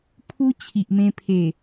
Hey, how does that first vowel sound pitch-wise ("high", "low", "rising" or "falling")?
high